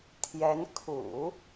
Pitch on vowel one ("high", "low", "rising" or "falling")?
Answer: rising